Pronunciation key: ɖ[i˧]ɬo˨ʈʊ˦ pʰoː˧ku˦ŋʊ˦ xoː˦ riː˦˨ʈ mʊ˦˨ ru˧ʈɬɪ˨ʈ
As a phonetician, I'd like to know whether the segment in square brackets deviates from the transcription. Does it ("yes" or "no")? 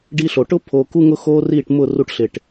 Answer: no